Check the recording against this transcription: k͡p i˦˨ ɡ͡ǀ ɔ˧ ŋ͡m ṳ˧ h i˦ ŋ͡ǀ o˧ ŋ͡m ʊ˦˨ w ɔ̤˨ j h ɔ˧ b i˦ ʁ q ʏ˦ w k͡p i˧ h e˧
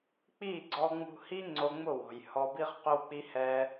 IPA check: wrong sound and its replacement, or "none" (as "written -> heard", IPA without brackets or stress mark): e˧ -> ɛ˧